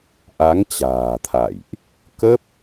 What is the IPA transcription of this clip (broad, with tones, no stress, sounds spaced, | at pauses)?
ʔ a˨˦ ŋ t͡ɕ a̤ː˨˩ t̪ʰ a̰˧˨ j ʔ | k ə˦˥ p̚